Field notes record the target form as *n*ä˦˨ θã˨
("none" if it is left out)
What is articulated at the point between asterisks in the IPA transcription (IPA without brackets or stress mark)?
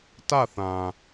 t